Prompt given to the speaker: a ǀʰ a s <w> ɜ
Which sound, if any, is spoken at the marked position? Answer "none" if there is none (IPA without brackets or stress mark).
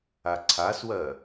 w